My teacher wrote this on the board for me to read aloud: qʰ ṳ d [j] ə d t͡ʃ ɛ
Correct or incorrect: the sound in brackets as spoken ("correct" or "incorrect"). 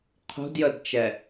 correct